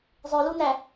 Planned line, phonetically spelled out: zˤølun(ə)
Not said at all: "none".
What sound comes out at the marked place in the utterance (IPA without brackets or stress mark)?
æ